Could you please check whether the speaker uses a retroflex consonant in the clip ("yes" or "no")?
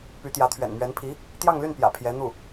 no